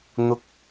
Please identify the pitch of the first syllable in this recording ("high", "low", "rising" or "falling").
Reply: low